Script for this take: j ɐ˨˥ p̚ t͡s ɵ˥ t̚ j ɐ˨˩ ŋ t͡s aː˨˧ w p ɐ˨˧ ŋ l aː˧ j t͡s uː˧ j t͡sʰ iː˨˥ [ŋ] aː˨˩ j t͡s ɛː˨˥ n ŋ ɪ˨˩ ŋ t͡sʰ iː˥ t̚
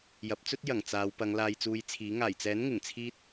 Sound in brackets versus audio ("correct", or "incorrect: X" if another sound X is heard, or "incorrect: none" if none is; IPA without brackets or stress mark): correct